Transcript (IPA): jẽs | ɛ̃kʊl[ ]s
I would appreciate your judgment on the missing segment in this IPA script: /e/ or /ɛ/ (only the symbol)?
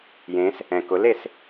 e